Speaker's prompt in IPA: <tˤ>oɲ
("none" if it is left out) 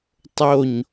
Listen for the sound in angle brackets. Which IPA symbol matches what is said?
tˤ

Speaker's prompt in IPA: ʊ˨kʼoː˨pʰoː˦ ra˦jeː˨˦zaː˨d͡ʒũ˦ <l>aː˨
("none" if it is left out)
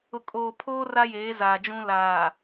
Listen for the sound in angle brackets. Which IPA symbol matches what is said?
l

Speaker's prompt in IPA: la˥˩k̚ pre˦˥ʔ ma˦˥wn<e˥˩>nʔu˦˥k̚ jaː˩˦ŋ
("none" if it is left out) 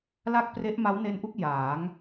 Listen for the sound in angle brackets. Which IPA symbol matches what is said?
e˦˥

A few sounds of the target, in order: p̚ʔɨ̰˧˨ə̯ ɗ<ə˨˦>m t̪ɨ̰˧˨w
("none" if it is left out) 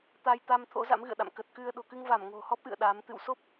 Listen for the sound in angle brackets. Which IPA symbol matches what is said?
a˨˦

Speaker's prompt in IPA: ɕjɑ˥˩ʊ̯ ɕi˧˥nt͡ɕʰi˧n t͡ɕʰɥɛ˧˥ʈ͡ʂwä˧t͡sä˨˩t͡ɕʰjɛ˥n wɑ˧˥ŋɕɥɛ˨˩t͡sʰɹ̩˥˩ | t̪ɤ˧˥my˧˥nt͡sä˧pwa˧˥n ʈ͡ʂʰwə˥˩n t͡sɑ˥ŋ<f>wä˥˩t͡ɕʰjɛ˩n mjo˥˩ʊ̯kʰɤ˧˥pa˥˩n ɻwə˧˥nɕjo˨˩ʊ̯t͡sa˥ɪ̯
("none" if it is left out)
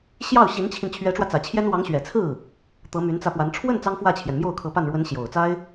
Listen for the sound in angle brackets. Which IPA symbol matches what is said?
f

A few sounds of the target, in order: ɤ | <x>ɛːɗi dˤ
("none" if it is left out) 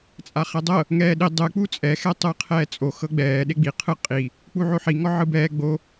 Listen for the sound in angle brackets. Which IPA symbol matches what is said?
ŋ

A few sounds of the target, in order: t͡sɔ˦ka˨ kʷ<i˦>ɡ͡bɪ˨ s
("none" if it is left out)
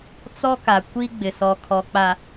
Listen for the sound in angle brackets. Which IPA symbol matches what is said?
i˦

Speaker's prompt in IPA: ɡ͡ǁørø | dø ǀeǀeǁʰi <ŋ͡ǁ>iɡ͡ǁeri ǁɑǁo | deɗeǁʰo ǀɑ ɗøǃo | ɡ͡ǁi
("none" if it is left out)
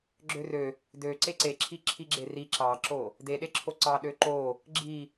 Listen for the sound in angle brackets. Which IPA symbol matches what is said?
ǁʰ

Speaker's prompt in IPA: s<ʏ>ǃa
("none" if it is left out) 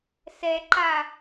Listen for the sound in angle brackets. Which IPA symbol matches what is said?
ɛ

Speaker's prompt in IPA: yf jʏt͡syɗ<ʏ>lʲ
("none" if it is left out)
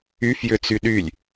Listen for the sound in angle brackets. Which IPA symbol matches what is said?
y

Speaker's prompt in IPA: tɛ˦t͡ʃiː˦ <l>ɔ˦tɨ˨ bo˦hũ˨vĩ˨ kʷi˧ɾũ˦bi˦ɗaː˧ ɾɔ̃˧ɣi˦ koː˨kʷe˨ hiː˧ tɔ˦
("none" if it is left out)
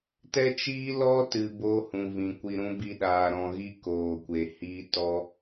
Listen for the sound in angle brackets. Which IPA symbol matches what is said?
l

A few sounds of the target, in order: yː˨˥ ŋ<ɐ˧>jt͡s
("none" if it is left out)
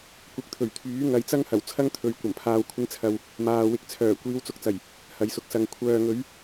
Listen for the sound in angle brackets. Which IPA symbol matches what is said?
ɐ˨˧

